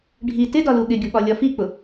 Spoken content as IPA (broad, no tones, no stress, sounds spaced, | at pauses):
ɖʱ i t ɪ d ɒ l u ɠ ɪ ɡʲ ʊ ɓ ɒ lʲ ɒ f i k͡p ʊ